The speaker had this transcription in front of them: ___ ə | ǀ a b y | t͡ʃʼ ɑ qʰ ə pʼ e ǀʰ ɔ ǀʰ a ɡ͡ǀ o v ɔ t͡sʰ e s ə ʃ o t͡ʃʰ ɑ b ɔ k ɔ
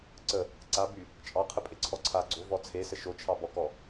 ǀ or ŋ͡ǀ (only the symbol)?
ǀ